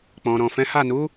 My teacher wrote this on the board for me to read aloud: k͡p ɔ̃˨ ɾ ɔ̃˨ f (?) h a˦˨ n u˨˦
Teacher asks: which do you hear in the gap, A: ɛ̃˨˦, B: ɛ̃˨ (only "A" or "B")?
A